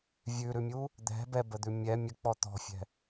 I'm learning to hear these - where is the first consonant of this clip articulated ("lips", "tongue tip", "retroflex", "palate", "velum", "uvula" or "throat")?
lips